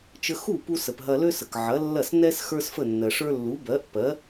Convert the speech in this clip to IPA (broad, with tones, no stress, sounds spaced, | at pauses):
t͡ʃ ə˧ x u˥˩ p u˧ s ə˩ p ɦ ɐ˧ l ø˥ s ə˩ k ʕ ɐ˩˥ lː ɐ˥˩ s n ɛ˥ s x ə˞˥ s f ə˥˩ nː ɜ˩ ʂ ə˞˥ lː u˩˥ b ɜ˩˥ ʔ p ɜ˩˥